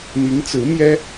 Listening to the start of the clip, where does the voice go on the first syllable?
rising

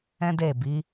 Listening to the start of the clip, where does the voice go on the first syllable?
high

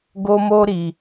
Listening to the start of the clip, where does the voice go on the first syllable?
high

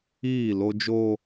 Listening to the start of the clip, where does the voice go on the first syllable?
falling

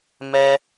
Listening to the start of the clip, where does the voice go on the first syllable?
high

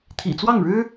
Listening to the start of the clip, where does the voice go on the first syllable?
low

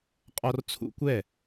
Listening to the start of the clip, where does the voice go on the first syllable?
high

